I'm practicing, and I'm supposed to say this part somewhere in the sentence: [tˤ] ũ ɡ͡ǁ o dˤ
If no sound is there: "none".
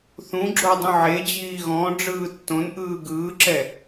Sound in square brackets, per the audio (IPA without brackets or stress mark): θ